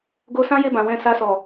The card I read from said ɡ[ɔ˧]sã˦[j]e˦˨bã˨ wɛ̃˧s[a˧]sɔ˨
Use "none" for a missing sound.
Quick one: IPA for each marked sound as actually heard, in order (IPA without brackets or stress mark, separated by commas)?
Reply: o˧, j, a˧